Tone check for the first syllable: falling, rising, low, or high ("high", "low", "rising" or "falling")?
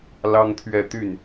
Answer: high